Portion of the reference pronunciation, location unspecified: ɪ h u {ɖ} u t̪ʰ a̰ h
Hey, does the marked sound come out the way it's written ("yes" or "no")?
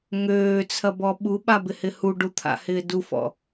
yes